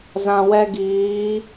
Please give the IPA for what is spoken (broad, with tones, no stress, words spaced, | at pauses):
zã˨wɛ˧ɡiː˨˦